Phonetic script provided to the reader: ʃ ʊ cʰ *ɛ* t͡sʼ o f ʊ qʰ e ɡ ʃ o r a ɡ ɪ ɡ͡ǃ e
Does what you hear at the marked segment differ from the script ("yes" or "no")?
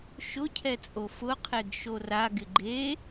no